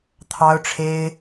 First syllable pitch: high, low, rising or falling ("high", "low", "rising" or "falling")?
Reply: high